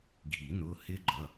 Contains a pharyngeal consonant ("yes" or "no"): no